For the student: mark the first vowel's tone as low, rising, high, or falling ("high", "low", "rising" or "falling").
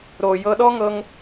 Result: low